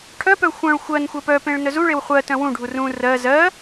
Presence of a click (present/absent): absent